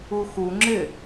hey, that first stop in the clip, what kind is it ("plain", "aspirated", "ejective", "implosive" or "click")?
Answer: click